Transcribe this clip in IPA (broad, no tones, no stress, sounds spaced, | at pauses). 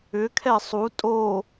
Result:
ʏ kʰ ɛ sˤ u tʼ o